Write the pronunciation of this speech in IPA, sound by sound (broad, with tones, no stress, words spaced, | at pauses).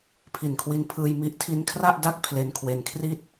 pʰi˨˩nkʰwi˧npʰɯː˧j mi˦˥ʔtʰi˦˥n kʰra˥˩ʔda˥˩k̚ pʰle˧nkʰwe˧nkʰri˥˩t̚